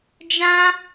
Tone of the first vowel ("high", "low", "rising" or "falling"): high